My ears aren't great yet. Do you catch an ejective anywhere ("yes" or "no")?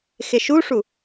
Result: no